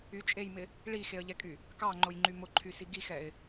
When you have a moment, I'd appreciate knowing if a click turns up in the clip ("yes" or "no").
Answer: yes